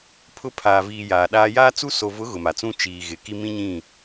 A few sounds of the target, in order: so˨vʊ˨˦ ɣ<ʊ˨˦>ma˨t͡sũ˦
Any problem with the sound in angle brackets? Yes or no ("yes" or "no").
yes